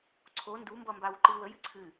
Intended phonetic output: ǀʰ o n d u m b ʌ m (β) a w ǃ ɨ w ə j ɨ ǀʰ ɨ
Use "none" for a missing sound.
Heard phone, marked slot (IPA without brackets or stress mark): b